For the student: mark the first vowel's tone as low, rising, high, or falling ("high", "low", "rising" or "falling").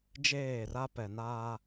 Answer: falling